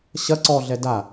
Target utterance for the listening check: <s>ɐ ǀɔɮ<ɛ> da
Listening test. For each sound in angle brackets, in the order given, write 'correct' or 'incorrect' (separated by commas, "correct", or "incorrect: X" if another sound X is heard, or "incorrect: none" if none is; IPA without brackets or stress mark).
incorrect: ɕ, correct